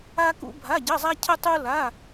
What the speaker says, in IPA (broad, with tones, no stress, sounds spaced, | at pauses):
a˥ k ṵ˥ bʱ a˧˥˧ ɟ ə˧˥˧ zˤ a˥ cʰ ə˥ tˤ u˥ l a˧˥˧